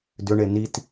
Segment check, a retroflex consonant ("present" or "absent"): present